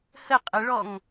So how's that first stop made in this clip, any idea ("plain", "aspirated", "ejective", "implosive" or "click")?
ejective